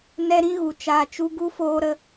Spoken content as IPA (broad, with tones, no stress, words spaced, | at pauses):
nɛ˦ɾĩ˦ɣu˨ t͡ʃaː˨t͡ʃu˧ ɡu˦foː˧ɾə˧